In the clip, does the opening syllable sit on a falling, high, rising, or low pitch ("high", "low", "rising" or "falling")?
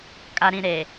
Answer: low